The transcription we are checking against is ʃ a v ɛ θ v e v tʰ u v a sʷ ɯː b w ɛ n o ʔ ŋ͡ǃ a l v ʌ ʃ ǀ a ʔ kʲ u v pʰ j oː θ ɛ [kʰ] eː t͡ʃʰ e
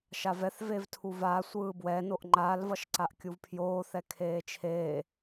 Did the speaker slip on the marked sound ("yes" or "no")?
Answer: no